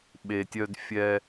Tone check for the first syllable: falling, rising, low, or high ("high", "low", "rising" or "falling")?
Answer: low